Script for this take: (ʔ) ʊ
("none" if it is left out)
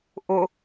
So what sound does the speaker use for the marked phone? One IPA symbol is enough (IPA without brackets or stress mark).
ʔ